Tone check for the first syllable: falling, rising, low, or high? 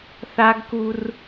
high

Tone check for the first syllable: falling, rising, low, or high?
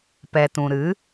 low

